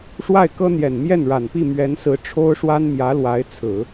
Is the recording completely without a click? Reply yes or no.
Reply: yes